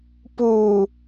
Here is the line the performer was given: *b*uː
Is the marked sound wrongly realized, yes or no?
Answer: yes